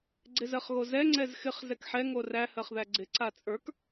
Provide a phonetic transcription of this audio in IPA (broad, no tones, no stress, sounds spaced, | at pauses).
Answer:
ɡ͡ǀ ɪ z ɜ χ ɣ o z ɛ ŋ͡ǀ ɛ z x ɪ χ z ɛ k ħ ɛ ŋ o r æ h ɜ χ ð æ ɡ͡ǀ ɪ ǀ a t͡sʼ ə˞ k